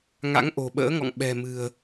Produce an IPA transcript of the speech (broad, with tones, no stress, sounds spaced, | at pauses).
ŋ a̰˧˥ ŋ ʔ o̤˨˩ ɓ ə̰ː˧˥ ŋ ɔ̰˧˨ ŋ ɓ ɛ̤˨˩ m ɨ̤˨˩ ə̯